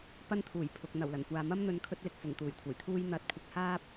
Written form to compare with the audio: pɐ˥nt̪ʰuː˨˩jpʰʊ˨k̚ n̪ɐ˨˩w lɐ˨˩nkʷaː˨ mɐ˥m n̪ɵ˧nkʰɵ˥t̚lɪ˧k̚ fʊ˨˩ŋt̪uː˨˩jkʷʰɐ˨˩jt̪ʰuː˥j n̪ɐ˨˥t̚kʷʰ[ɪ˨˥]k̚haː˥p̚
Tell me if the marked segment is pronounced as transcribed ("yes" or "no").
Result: yes